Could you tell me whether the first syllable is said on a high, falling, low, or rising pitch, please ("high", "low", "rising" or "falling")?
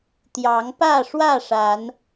rising